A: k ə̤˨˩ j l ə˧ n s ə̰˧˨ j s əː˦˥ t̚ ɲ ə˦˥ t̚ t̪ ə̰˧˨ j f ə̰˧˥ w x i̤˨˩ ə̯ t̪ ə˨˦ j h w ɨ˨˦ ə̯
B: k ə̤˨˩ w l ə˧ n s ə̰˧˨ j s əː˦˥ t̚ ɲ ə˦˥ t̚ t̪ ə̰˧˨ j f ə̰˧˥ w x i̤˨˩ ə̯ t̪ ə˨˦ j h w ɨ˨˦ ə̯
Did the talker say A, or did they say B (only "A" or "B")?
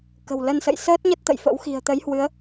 B